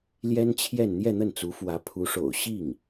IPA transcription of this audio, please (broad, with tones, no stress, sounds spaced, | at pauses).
l j ɛ˥ n t͡ɕʰ j ɛ˥˧ n n̪ j ɛ˥˧ n̪ ə˥˩ n t͡s u˧˥ f w ä˧˥ pʰ u˧˥ ʂ o̰˨˩ ʊ̯ ɕ i˥˩ ŋ